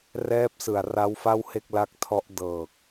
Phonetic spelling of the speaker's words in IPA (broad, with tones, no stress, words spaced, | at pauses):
rɛː˦˥p̚sɯ˨˩a̯ ra˦˥wfa˥˩whe˥˩k̚ la˦˥k̚tʰɔ˦˥ʔ dɤː˨˩k̚